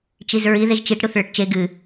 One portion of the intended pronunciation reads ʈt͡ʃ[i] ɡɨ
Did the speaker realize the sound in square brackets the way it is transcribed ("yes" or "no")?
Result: no